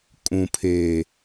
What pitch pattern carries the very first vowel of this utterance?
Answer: low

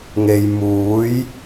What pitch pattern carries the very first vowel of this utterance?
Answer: low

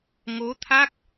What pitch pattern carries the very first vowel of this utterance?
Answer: rising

